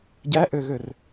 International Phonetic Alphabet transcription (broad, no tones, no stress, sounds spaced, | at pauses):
ɟ æ ʔ ø ɣ ø r